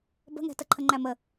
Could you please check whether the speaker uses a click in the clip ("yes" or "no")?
yes